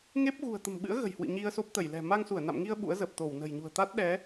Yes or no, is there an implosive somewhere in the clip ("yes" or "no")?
yes